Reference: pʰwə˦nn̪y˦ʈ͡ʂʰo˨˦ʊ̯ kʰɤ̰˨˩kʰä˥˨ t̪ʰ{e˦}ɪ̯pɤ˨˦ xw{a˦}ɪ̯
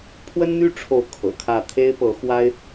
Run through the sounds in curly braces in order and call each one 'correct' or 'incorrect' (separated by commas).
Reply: correct, correct